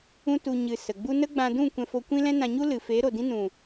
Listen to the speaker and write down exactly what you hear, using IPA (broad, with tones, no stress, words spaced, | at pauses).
ũ˦tu˧ ɲɨ˨ sə˨ɡ͡bu˦ nə˦ɡ͡bã˧dũ˦˨ kʷɛ̃˧fo˧ kʷĩ˦ lɛ̃˦nã˧ɲu˦ lɨ˨ feː˨˦ɾo˨dĩ˦nũ˨